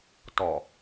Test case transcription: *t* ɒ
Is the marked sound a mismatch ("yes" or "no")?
no